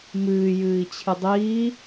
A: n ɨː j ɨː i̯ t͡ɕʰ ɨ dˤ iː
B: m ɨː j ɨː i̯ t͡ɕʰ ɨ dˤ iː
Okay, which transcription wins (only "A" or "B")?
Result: B